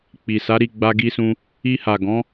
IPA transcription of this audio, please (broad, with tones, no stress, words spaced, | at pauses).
k͡pi˨sa˨˦ ɾi˦˨ɡ͡ba˧ɡi˧sũ˧ | i˧ha˨ ɡɔ̃˨˦